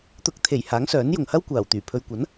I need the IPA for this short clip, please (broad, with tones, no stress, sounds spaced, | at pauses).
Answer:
t̪ ʊ˨˥ k̚ t̪ʰ e˨˩ j h aː˨˥ ŋ s œː˨˥ n j ʊ˨ ŋ h ɐ˥ w kʷ aː˨˩ w t̪ yː˨˩ pʰ ɵ˨ ɥ kʷ ɐ˨˥ n